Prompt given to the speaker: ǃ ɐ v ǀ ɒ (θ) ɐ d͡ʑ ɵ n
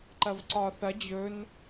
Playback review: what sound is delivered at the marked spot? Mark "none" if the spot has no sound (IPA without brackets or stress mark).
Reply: θ